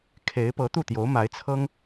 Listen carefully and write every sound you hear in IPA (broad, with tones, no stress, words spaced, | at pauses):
kʰe˧˥ɪ̯ pɤ˧˥t̪u˥˩t̪jo˧˥ʊ̯ ma˧˥ɪ̯ t͡sʰɤ˥ŋ